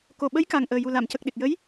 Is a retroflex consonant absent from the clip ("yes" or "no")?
yes